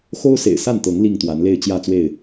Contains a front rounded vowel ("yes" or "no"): no